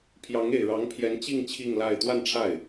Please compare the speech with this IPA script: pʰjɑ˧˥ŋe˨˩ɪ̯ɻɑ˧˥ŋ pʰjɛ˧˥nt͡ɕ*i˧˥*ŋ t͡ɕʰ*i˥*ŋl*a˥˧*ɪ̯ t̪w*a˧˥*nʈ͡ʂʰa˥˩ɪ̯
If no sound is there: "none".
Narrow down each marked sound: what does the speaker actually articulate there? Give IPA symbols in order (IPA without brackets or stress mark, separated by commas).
i˥˧, i˥˧, a˥˧, a˥˧